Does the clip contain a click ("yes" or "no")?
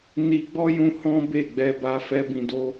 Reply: no